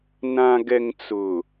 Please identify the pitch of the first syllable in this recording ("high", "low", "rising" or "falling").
low